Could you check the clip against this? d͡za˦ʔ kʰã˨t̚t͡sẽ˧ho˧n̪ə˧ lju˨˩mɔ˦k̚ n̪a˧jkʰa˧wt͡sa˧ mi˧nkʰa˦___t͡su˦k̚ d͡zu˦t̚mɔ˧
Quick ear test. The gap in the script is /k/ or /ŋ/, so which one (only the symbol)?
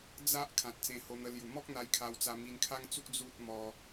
ŋ